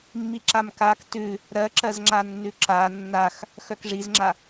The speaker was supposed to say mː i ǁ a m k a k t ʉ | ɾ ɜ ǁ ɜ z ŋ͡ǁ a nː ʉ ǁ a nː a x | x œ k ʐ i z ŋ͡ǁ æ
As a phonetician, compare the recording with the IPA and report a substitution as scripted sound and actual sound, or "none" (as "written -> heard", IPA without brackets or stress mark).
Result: æ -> a